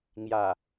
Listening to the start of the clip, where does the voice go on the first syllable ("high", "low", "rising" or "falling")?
low